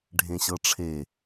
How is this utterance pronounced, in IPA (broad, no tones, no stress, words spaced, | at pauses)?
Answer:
ɖʱẽɕɤʈ͡ʂʰe